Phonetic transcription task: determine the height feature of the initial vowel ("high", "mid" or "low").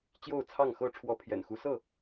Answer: mid